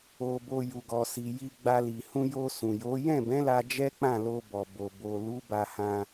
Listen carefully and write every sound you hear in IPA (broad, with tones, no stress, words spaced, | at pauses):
o˧bo˧ ju˨ɡɔ˨si˨ji˧ ɡ͡ba˧li˨ hũ˧ jo˧ sũ˨jo˨˦ jɛ̃˦˨bɛ̃˨˦la˧ d͡ʒɛ˦k͡pã˦˨lo˧ bɔ˨bo˨ bo˨lu˨˦ ba˧hã˧